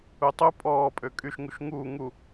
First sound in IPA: u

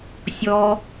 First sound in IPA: sʲ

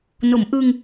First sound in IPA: n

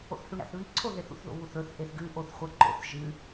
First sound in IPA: o̰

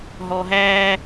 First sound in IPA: ɦ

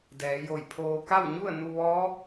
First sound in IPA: d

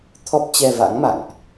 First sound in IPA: t̪ʰ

